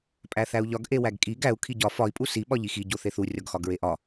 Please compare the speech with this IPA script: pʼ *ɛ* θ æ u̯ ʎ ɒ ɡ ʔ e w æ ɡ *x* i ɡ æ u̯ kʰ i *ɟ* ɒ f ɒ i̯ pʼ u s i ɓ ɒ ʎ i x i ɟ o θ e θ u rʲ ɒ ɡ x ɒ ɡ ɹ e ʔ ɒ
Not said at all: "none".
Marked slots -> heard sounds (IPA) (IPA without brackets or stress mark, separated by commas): æ, kʼ, ɟ